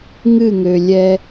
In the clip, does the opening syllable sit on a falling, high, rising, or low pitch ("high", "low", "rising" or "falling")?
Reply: falling